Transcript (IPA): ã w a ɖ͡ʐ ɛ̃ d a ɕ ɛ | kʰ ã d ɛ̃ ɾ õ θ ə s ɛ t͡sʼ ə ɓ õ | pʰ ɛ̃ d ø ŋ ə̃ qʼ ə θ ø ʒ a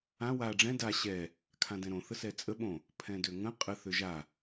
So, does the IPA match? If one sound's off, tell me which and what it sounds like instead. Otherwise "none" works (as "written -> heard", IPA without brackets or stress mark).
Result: none